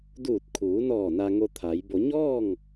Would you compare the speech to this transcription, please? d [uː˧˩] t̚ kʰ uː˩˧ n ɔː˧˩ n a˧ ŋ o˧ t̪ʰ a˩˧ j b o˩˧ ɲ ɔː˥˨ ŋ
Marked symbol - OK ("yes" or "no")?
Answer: yes